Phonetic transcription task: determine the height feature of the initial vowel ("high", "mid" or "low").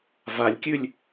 low